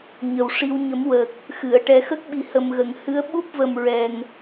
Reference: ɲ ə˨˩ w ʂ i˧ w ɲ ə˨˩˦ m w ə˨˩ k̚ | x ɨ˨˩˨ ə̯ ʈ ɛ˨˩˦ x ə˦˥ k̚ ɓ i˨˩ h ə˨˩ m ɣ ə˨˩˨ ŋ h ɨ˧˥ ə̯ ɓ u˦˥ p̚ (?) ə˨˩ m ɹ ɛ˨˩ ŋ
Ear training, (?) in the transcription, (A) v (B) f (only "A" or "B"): A